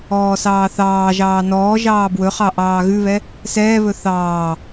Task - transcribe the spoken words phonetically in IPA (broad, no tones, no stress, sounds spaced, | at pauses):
ɔː s ɑː θ ɑː ʒ ɑː n ɔː ʒ ɑː b w ɵ χ ɑ ʔ ɑː ɣ ʉ β ɛ | s ɛː β ɵ θ ɑː